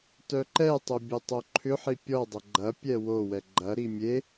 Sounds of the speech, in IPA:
tœǃɛtˤʊ bʲʊtˤoǃʰʏħi pʲɔdˤɐ ɡ͡ǃɐpʲɛ wowɛ ɡ͡ǃɐɾi mʲe

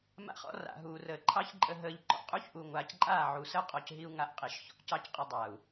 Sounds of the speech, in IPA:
ma̰˦χɔ̰˦ ra̰˨ ɦuː˨rəː˨ ǃʰɑ˦çǃʼə˧ ɦəː˧ʎ ǃɔ̰˧qʼu˦çʔuː˨ ŋʷaː˨cǃʼaː˦˨ ʕu˨səː˦qʼɔ˨cɦi˧u̯ ŋa˧ʔqʼi˨ʃ çɔ̰˧ʔcɑ˦cqʼə˧dˤa˨u̯

